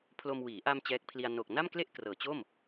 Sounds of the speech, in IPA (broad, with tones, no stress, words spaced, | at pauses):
pʰlo˧mwiː˩˦ ʔa˧m t͡ɕɛː˦˥k̚pʰli˧a̯ no˨˩k̚na˥˩mkle˥˩ʔ krɤː˩˦t͡ɕo˥˩m